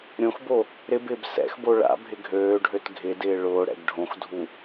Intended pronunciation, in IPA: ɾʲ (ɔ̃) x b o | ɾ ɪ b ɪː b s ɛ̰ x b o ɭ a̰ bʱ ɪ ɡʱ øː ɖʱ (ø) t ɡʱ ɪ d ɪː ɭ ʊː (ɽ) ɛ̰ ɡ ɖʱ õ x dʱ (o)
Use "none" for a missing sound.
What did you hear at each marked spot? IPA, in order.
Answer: õ, ø, ɽ, u

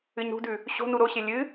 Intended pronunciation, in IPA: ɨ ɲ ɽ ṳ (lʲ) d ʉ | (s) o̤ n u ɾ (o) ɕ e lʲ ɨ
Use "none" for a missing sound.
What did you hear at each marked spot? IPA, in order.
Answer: none, ɕ, o

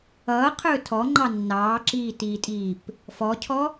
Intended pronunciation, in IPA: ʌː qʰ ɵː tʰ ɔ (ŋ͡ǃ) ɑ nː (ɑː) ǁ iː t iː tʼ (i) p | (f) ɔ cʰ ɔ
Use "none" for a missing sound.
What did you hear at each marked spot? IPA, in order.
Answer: ŋ͡ǃ, ɑː, iː, f

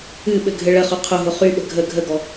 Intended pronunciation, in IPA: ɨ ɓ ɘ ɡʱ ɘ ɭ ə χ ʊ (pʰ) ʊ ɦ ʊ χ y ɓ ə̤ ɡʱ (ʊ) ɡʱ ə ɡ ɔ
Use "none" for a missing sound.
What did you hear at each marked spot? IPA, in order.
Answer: qʰ, ə

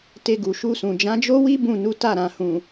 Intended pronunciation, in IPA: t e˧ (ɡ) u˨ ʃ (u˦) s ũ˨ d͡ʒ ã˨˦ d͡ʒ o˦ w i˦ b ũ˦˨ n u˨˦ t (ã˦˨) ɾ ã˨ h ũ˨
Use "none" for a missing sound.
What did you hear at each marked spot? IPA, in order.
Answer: ɡ, u˧, a˦˨

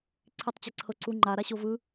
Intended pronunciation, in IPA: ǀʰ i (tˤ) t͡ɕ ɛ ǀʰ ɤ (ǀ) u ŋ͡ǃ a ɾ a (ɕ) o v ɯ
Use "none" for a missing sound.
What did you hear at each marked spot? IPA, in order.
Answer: tˤ, ǀ, ɕ

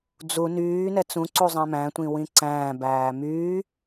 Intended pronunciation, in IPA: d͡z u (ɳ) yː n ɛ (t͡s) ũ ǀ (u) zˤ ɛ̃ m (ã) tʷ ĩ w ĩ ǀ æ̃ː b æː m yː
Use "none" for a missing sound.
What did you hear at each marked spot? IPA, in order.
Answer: n, t͡s, u, æ̃

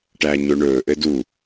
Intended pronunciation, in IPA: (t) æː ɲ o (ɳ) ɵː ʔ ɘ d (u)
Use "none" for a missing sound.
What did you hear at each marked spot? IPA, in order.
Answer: ʈ, ɳ, u

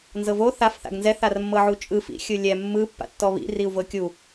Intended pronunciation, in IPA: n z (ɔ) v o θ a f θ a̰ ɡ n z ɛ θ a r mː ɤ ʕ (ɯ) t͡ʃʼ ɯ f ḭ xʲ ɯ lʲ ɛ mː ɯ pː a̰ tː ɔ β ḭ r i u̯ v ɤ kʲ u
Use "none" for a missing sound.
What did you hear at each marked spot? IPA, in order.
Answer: ɤ, u

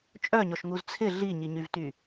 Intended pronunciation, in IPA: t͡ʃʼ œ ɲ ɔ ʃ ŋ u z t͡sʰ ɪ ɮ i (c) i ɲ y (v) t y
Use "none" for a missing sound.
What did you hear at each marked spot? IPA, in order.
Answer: ɲ, v

